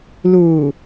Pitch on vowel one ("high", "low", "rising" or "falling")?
low